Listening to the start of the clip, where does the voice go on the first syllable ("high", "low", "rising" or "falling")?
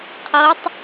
rising